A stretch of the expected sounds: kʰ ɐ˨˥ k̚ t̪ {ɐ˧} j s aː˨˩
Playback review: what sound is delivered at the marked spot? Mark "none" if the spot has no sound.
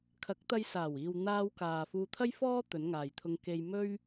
ɐ˧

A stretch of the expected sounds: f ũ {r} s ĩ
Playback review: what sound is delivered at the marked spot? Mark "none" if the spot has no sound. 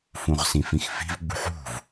ʁ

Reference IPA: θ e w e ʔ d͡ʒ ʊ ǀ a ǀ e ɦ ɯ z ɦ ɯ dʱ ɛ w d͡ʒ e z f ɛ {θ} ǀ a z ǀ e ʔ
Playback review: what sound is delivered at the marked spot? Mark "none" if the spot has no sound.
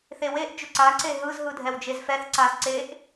θ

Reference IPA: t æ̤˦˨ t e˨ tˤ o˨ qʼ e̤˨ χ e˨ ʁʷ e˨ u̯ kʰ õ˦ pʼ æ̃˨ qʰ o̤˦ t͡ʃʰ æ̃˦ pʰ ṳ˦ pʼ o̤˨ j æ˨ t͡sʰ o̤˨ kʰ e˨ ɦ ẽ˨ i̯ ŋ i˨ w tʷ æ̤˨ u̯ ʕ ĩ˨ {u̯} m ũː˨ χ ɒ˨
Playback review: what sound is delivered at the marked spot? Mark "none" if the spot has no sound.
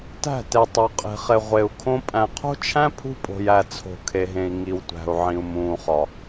u̯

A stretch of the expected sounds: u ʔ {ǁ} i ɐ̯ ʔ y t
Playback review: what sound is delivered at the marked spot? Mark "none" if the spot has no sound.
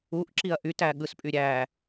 ǁ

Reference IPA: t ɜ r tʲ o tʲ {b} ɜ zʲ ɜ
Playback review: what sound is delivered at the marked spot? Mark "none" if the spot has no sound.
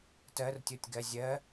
ɡ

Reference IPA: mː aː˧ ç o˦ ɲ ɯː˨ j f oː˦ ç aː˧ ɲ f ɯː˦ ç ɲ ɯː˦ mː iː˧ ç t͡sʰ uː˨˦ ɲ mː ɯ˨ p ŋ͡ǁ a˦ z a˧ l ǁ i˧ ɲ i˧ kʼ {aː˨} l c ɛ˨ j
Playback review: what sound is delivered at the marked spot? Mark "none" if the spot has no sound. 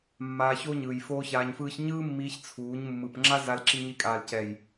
aː˨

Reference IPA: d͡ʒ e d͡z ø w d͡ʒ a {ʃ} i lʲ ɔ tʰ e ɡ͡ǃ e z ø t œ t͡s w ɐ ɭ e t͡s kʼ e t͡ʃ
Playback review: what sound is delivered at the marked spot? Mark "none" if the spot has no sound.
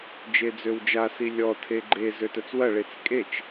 s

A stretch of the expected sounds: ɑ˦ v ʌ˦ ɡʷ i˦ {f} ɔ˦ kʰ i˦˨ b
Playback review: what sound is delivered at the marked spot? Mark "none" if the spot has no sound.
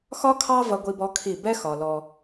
b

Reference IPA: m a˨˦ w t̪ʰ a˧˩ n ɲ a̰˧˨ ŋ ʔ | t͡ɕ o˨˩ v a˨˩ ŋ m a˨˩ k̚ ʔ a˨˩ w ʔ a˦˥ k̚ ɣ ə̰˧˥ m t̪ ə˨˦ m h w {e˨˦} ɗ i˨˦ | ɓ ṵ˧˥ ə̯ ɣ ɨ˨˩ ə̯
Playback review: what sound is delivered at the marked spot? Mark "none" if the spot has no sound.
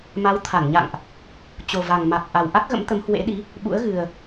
ḛ˧˥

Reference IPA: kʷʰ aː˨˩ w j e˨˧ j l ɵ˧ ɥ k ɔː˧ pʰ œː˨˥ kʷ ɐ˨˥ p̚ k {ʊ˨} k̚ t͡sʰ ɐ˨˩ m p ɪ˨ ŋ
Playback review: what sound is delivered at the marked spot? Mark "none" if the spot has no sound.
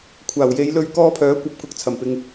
ʊ˨˥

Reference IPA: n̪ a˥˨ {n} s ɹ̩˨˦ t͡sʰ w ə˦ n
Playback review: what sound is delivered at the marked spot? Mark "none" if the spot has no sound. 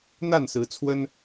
n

